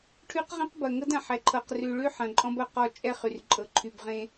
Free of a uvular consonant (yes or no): no